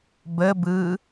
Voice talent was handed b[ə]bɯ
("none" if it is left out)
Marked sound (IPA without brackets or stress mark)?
ə